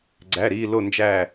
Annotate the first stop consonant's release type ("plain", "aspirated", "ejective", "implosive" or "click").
click